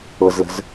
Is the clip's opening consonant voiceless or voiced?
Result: voiced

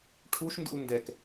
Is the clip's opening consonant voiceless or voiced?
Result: voiceless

